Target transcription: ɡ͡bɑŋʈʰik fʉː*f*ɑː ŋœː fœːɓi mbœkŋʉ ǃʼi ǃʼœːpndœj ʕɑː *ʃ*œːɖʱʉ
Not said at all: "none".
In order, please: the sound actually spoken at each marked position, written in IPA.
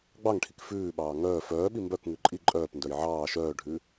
ɓ, ʃ

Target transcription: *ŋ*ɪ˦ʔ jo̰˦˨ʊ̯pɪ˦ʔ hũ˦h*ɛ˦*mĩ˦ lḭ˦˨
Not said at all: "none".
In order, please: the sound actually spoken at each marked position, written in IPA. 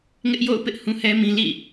ŋ, ɛ˦

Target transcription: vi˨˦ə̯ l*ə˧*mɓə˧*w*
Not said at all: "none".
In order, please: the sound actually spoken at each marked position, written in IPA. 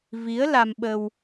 a˧, w

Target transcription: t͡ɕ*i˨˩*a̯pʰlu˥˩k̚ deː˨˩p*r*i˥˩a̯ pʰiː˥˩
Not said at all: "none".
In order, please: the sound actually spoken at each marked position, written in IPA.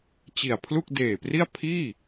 i˨˩, r

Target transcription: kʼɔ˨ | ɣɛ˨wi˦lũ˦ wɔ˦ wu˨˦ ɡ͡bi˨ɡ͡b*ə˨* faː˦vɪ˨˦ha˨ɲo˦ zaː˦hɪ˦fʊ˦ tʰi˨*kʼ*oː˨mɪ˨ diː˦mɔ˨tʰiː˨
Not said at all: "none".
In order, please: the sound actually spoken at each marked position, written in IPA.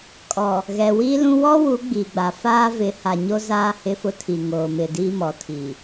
a˨, ŋ

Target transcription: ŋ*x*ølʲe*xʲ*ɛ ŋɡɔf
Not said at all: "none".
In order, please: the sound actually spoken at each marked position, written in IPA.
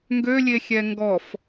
ɡ, xʲ

